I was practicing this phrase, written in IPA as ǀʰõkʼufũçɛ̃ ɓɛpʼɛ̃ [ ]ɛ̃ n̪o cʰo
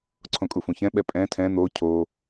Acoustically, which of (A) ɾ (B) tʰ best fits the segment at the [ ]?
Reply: B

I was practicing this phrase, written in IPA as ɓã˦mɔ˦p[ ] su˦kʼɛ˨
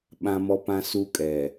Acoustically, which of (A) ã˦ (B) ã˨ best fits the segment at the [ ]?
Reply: A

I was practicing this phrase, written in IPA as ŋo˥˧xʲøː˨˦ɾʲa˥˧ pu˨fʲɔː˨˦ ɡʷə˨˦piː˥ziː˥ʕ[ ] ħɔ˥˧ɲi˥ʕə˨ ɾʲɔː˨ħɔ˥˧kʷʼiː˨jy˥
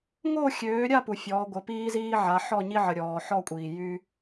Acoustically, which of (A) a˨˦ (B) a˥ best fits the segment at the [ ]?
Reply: A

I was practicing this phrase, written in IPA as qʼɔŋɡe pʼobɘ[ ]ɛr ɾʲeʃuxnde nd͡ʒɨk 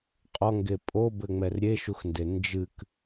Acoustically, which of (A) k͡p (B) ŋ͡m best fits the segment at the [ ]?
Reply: B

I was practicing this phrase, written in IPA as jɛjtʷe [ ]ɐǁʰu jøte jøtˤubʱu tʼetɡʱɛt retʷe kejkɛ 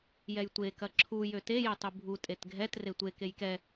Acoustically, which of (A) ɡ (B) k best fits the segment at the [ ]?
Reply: B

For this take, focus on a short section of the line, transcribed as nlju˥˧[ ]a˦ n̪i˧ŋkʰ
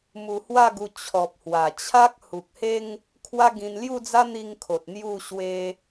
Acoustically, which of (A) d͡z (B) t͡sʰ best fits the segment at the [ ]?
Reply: A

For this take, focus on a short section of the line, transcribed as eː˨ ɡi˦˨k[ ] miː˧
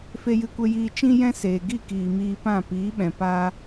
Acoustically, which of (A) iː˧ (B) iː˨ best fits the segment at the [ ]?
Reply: B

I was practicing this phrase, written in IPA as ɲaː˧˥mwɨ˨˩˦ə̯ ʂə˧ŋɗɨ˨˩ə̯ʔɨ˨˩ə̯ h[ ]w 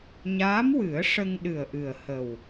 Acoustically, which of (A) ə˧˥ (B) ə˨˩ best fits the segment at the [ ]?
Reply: B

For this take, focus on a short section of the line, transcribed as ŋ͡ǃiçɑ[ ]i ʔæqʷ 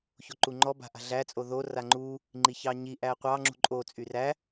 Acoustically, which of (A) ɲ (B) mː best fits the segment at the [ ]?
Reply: A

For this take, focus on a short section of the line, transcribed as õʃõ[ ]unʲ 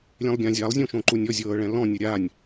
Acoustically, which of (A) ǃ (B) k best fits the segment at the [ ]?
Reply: A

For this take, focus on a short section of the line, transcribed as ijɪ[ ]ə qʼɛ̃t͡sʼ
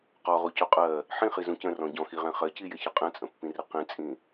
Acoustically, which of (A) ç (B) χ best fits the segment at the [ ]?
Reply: A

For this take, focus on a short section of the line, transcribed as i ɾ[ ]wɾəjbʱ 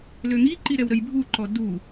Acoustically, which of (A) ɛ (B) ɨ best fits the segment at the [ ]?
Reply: A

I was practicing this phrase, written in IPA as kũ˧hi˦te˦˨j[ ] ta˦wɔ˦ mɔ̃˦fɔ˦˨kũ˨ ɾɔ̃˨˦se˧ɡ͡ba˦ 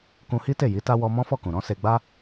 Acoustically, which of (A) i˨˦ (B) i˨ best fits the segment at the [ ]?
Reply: A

